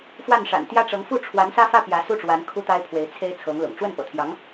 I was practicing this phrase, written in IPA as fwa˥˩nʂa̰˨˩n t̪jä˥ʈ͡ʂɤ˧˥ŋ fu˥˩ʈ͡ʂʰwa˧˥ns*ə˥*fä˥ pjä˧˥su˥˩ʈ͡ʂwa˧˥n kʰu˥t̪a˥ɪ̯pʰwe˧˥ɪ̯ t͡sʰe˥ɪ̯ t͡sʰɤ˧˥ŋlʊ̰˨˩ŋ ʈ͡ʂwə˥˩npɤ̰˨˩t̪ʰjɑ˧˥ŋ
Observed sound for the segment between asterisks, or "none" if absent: ä˥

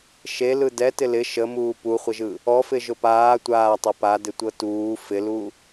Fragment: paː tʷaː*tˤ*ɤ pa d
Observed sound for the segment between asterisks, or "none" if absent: tˤ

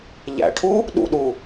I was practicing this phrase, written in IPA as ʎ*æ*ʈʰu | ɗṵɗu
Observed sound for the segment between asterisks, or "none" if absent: æ̰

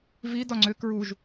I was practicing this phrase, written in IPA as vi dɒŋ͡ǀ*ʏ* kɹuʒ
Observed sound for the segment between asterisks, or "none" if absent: ʏ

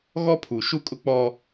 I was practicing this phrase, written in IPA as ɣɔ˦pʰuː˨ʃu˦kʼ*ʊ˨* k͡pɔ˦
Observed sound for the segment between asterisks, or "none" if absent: ʊ˦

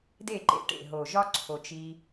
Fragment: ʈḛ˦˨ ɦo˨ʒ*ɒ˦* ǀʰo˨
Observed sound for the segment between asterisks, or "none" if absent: ɒ˦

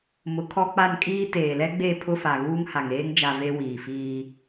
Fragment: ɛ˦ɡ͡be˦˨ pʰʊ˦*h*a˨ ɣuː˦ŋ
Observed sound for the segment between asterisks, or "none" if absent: f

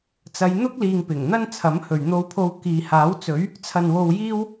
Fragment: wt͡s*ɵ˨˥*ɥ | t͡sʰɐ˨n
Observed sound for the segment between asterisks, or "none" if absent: ɵ˨˥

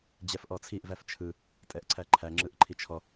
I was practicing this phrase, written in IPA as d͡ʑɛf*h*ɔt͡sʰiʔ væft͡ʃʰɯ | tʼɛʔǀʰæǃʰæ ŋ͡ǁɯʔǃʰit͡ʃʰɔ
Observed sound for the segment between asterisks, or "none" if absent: ʔ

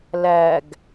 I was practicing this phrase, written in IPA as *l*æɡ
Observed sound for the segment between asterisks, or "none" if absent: l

